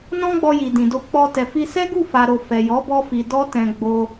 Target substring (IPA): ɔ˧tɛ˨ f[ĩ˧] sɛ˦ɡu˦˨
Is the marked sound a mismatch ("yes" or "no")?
yes